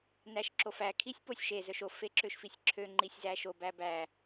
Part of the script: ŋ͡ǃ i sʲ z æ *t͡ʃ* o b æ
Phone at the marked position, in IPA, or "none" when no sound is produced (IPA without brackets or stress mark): ʃ